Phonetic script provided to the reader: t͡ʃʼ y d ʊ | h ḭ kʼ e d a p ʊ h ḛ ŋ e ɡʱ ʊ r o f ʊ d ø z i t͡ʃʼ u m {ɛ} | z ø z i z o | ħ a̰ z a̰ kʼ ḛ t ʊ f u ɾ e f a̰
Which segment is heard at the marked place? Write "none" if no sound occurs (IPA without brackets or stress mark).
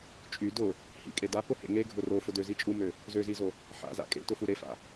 ø